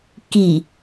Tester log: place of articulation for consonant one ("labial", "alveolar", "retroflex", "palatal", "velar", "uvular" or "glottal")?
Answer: velar